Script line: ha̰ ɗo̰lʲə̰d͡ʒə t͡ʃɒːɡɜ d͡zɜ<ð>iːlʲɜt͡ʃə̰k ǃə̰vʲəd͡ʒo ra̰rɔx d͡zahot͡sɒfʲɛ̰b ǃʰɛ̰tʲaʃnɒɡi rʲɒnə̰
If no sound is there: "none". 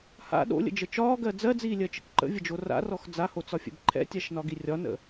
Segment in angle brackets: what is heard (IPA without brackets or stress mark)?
d͡z